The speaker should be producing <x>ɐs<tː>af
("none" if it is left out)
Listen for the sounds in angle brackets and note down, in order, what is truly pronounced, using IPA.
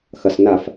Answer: x, n

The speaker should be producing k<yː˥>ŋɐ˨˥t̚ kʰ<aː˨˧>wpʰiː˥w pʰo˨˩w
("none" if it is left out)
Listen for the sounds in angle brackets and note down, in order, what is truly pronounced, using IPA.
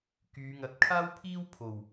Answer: yː˨˧, aː˥

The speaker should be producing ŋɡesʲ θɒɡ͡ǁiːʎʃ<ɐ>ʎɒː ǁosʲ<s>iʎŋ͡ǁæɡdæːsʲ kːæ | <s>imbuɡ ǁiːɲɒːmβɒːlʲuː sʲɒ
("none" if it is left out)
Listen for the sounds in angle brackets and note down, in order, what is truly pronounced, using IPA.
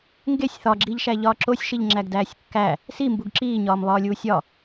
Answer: æ, ʃ, s

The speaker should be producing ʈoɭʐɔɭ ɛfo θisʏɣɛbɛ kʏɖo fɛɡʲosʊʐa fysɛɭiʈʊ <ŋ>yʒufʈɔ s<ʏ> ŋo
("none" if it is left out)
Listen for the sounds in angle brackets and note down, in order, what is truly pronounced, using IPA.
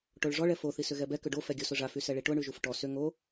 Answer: ɳ, ʏ

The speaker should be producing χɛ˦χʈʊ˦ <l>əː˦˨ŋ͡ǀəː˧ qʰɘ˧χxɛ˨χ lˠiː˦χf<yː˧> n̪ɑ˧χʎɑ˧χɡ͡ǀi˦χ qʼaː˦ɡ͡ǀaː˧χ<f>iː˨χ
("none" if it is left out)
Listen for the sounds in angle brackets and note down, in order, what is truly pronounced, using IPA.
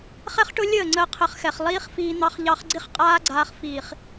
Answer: lʲ, iː˧, f

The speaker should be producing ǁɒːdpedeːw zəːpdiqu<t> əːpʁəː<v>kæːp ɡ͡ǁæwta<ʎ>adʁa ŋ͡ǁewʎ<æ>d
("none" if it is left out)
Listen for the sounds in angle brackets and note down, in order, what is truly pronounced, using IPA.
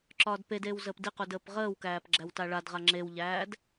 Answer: d, w, ɭ, æː

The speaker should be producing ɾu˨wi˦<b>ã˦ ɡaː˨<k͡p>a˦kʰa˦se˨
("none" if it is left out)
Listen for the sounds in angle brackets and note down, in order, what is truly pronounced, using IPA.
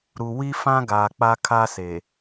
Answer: f, k͡p

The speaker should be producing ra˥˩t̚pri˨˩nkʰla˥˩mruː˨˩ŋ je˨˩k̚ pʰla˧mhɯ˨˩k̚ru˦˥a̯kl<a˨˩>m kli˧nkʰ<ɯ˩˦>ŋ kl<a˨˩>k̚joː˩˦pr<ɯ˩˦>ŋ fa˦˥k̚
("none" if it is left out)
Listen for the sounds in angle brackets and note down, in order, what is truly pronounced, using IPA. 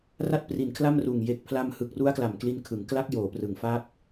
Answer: a˨˩, ɯ˩˦, a˦˥, ɯ˩˦

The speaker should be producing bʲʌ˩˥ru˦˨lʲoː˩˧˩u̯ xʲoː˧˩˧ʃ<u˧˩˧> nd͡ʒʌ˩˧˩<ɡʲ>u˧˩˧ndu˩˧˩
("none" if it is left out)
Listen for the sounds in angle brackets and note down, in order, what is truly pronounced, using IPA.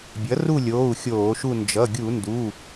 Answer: u˦˨, ɡʲ

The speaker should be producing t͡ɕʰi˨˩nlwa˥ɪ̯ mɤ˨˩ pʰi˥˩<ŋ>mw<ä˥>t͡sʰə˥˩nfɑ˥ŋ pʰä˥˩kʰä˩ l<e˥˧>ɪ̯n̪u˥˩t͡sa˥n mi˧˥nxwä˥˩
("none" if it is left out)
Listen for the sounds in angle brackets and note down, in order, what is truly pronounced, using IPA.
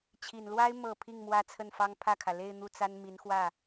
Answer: ŋ, ä˥, e˥˧

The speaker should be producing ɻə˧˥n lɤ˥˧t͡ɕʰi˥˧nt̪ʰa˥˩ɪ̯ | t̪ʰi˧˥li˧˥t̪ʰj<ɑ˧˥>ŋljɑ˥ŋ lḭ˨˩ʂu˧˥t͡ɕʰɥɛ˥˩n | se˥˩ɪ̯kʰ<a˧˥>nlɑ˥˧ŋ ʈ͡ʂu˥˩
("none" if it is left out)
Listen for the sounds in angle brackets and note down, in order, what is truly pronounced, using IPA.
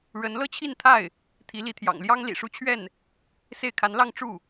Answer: ɑ̰˨˩, a˧˥

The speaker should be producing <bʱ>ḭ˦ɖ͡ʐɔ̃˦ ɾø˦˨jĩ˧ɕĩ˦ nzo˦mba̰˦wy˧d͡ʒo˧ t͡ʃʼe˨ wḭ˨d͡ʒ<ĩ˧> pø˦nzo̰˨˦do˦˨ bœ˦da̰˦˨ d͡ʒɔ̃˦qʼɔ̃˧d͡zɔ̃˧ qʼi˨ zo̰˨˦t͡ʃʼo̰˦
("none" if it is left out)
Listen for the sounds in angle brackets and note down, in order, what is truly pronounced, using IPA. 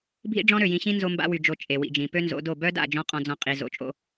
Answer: bʱ, ĩ˨

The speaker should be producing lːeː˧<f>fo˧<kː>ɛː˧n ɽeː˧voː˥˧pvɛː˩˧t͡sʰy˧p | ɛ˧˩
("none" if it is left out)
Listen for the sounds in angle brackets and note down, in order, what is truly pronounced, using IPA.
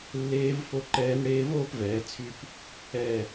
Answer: v, ǃ

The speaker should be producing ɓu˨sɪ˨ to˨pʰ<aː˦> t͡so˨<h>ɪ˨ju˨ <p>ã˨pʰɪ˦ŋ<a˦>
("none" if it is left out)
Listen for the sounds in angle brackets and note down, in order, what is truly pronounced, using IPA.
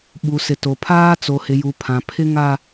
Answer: aː˦, h, pʰ, a˦

